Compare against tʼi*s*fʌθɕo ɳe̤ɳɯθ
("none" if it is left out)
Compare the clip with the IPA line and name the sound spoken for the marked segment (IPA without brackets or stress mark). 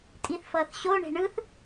θ